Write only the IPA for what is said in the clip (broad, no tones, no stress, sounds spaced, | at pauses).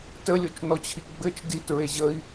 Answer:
t ə lʲ o t͡ʃ n ɔ t͡ɕʰ i ɡ͡b ɘ t͡ʃ d i t ɹ e ʑ ə i̯